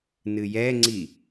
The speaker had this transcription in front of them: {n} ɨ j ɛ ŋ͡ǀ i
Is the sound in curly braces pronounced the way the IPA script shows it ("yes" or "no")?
yes